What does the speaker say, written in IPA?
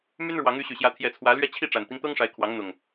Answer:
m y˦ n ɻ w ɑ˨˦ ŋ y˨˦ ɕ y˨˩ ɕ j ä˨˦ t̪ʰ j ɛ˨˦ t͡sʰ w ä˨˦ l ɥ ɛ˦ t͡ɕʰ i˥˨ ʈ͡ʂ a˨˩ n t̪ i˦ ŋ t̪ ɤ˦ ŋ ʂ a˨˦ ɪ̯ kʰ w ɑ˨˦ ŋ n̪ ʊ˨˩ ŋ

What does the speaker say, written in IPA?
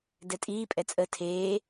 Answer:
d ɛ tʼ iː pʼ ɛ t͡sʼ ə tʰ eː

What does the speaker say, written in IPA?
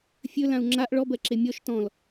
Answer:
fʲ ɵ l ã u̯ ŋ͡ǁ a ʔ ɭ ɔ b ɜ ǁ e mʲ ɔ ʃ t ɔ̃ l

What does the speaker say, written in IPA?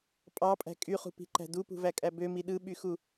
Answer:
pʼ ɑ pʼ æ̤ kʼ y χ ṳ p i̤ ǃ æ̤ d u p ṳ v æ kʼ æ b ø m i ɗ ɯ ɓ y x u

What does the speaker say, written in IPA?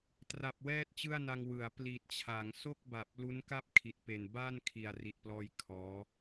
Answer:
t r a˨˩ p̚ w ɛː˥˩ t̚ t͡ɕ ɯ˥˩ a̯ n a˧ ŋ w ɯ˩˦ a̯ p l i˨˩ t̚ t͡ɕʰ a˩˦ ŋ s o˥˩ k̚ b a˨˩ p̚ l u˦˥ n k a˥˩ p̚ kʰ i˨˩ t̚ p e˨˩ n b aː˥˩ n kʰ i˨˩ a̯ r i˨˩ t̚ p l ɔː˧ j kʰ ɔː˦˥

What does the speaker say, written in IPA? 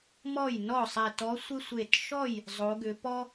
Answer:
m ɔ˥˩ j n ɔ˥˩ sˤ ɛ˧˩ t ɔ˧˥ sʷ ɪ˥ sʷ e˧˩ t ʃ ɔ˥˩ j | zˤ o˩˧ ɡ ʏ˩˧ p ɔ˥

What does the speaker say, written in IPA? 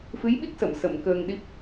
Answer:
f ɨ˧˥ j ɓ i˦˥ k̚ s ə˨˩˨ m s ə˨˩˨ m k əː˧ ŋ ɗ i˦˥ p̚

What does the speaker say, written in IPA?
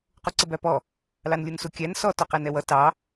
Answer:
q u ǀ ə b æ p ɔ | l ɑ n lʲ u n s u kʲ æ n s ɔ t ɔ q æ n ɛ w ʌ t ɑ

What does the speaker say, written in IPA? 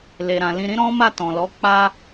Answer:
l e˨ ɾ ã˨ l ĩ˧ ɾ ĩ˦ ɾ ɔ̃˦ m a˦˨ t ɔ̃˨ l ɔ˨˦ k͡p a˦

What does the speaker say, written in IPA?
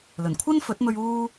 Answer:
l ɵ˨˩ n kʷʰ ɐ˥ n f ɵ˨˥ t̚ m ɵ˧ ɥ uː˥

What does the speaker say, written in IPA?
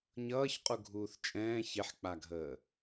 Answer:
ɲ ʌː ç qʼ u ɡʱ uː θ t͡ʃʼ ɛ̃ː ç e ħ k͡p a ɡʱ əː

